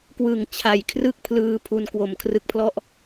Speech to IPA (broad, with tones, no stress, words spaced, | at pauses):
kwɯ˨˩ŋ t͡ɕʰa˨˩jkʰrɯ˥˩k̚ pʰlɯː˧ pʰu˧nkwo˨˩mkʰrɯ˦˥k̚pʰlɔ˥˩ʔ